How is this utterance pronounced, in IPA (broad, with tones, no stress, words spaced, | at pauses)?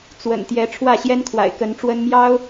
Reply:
t͡swə̰˨˩n t̪jɛ˨˦ʈ͡ʂʰwä˥˨ɕjɛ˦n kʰwa̰˨˩ɪ̯kə˨˦nʈ͡ʂwə˦n mjɑ˦ʊ̯